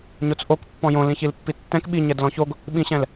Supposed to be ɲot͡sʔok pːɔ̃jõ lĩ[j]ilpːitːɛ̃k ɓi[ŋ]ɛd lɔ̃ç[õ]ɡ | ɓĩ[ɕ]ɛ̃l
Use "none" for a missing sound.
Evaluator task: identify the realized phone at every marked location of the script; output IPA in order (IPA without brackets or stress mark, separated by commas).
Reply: ç, ɲ, o, ɕ